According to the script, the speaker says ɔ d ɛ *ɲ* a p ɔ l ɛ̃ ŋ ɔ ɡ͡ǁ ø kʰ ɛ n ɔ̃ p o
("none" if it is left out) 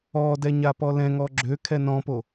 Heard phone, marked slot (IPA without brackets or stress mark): ɲ